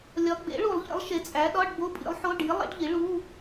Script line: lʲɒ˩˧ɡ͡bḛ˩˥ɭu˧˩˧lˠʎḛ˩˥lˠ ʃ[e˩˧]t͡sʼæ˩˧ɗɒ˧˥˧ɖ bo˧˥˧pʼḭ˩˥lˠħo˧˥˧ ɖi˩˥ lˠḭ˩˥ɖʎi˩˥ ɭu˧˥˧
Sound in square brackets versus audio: correct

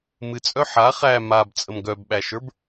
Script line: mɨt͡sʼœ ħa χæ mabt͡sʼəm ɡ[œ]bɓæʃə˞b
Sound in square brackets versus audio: correct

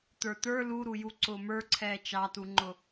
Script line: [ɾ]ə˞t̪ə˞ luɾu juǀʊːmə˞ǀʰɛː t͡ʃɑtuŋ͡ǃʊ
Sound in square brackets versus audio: incorrect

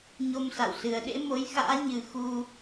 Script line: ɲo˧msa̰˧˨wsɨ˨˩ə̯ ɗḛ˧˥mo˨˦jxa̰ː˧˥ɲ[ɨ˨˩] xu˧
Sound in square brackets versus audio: correct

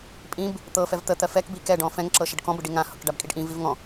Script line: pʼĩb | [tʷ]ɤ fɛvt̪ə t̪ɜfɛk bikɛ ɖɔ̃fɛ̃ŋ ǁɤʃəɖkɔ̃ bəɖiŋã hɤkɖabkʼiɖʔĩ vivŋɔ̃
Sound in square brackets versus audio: incorrect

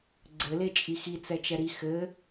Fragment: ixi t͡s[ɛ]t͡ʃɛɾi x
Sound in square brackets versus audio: correct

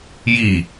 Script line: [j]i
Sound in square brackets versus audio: correct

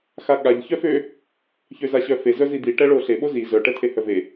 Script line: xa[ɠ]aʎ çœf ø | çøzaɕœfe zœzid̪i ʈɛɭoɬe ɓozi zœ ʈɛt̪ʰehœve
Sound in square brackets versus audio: correct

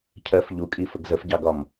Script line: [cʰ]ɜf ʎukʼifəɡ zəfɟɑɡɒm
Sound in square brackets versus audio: correct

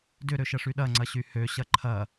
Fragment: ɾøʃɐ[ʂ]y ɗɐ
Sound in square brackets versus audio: correct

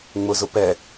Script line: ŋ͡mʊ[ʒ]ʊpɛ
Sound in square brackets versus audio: incorrect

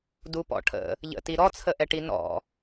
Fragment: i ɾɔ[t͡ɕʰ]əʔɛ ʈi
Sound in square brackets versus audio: incorrect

